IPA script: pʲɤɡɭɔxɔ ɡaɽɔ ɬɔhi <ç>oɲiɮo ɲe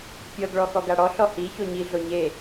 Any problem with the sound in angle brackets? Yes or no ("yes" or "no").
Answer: no